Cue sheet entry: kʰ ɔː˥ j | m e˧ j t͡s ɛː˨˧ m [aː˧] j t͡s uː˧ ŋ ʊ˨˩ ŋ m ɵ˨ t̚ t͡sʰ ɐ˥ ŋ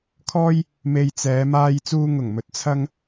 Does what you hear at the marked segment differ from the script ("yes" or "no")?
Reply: no